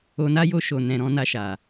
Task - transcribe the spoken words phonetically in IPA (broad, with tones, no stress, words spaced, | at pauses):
o˧na˦ jo˧ ʃo˨nɛ̃˨ ɾɔ̃˧na˧ʃa˨